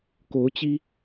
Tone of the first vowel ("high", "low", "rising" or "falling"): rising